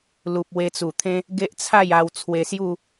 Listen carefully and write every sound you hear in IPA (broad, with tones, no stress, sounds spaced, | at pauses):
l u˨ p̚ w e˧ t͡s u˨˩ t̪ʰ ẽ˦ | ɡ e˦ ʔ t͡sʰ a˥˧ j a˧ w t͡sʰ w e˧ s j u˥˧